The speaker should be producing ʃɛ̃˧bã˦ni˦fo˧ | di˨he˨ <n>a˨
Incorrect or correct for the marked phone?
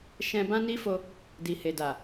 incorrect: d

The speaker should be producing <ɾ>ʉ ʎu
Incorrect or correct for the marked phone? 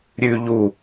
incorrect: ɾʲ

